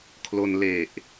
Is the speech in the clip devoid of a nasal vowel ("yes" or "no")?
yes